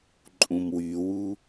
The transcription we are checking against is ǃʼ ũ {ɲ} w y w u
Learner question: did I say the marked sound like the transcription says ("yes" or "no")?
no